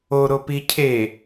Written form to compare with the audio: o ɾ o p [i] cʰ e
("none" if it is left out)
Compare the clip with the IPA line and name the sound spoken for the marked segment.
i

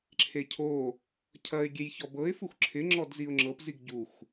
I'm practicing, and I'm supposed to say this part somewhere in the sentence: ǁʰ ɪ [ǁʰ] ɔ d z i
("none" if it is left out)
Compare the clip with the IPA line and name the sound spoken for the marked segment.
ŋ͡ǁ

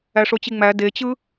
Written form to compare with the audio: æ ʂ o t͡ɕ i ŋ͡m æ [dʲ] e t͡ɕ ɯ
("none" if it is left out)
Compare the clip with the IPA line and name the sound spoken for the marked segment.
d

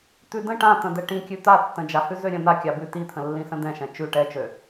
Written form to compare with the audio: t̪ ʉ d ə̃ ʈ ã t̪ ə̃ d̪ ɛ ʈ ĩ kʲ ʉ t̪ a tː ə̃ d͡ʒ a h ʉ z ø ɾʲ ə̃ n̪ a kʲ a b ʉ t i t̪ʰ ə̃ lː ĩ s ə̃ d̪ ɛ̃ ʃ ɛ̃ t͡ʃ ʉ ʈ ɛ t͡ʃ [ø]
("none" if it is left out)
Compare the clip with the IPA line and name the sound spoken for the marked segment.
ø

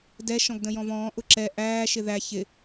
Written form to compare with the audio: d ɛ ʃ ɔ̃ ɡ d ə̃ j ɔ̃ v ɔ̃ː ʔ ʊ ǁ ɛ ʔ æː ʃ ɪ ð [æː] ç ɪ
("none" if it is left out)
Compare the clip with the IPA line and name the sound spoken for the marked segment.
æ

